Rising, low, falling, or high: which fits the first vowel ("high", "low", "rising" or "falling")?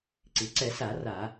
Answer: low